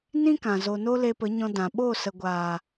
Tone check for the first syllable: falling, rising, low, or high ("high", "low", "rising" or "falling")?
high